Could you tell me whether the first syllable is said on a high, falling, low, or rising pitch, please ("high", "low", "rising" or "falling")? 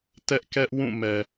high